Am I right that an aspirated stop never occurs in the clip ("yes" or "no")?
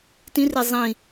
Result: yes